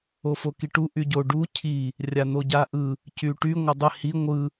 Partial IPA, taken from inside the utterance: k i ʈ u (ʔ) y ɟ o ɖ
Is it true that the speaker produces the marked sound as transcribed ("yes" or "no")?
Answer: yes